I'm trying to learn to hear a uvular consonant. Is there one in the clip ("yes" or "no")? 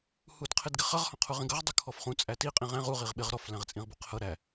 yes